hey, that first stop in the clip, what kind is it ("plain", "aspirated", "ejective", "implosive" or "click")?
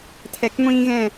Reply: aspirated